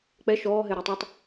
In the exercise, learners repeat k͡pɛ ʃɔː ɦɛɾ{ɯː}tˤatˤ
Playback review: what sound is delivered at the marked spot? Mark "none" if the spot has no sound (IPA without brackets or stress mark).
ɯː